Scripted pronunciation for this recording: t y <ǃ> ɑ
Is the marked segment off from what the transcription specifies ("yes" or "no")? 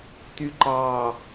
no